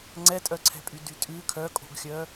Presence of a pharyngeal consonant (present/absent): absent